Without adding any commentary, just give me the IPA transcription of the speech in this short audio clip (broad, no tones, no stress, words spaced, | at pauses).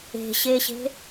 e̤ɕeɕe̤